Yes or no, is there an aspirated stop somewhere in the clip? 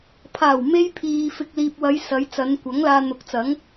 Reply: yes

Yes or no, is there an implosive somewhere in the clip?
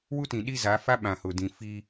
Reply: yes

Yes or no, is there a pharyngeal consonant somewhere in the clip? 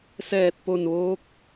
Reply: no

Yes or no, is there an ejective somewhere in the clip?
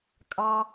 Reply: yes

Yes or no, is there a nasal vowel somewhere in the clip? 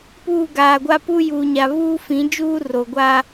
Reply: yes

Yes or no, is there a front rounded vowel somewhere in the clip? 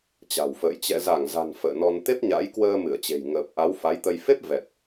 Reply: no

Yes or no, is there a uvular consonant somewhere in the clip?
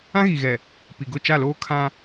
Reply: no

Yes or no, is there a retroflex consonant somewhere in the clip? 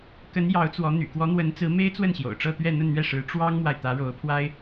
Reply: yes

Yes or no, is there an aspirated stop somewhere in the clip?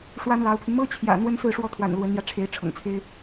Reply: yes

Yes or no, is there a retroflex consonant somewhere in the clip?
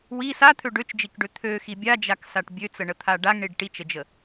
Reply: yes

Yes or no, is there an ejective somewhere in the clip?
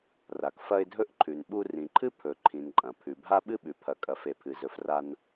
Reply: yes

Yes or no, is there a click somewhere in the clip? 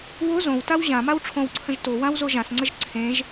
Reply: yes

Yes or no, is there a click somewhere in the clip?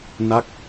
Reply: no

